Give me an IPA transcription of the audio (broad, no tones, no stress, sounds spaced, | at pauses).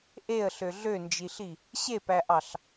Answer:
ʔ e ə̯ ɬ ø ɮ ø n d͡ʒ i ɬ i | ɕ e p æ ʔ ɑ ɬ